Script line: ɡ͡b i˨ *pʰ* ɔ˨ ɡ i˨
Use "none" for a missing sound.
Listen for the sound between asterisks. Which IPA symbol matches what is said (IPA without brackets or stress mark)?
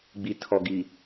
tʰ